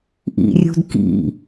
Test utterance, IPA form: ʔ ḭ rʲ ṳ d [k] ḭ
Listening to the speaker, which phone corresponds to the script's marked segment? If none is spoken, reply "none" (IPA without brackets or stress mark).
k